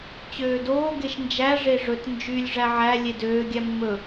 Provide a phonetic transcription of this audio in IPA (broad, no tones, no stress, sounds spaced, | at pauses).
t͡ɕ øː d oː ɡ e ʃ n d͡ʒ æ ʐ e ʐ ɵ t n d͡ʒ y lʲ ʐ æ ʕ æ lʲ e d øː ɡʲ æ mː ɵ